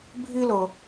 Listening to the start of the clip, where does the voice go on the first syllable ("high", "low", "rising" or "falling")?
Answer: high